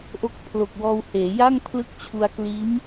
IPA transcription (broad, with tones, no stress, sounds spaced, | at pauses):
ʔ o˦˥ k̚ pʰ l o˨˩ k̚ w ɔː˧ w h eː˩˦ j a˥˩ ŋ pʰ l ɯ˦˥ k̚ t͡ɕʰ u˧ a̯ k l iː˦˥ m